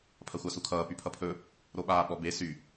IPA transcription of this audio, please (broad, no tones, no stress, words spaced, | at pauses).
pʰɐxʷasukʰʌː pypʰʌpʰɵ | ɾoɓaːɓɔbe sy